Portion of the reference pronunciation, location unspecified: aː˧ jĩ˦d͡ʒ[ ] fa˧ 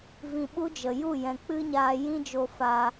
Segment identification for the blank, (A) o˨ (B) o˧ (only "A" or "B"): B